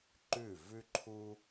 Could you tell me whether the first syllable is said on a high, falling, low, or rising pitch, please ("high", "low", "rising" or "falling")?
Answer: falling